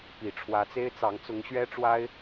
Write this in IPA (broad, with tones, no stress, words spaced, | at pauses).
pi˨˩ʈ͡ʂʰwä˧˥t͡se˥ɪ̯t͡sɑ˧˥ŋ t͡sʊ˧˥ŋɕɥɛ˥ʈ͡ʂwa˥ɪ̯